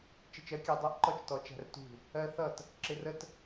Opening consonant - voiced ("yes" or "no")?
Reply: no